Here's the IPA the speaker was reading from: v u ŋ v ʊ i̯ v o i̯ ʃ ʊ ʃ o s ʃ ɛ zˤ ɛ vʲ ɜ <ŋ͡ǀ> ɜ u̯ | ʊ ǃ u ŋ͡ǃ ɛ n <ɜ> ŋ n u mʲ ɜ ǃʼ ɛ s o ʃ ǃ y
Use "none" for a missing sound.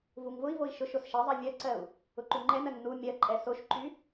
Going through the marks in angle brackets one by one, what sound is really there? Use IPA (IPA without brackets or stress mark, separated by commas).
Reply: ǀ, ɜ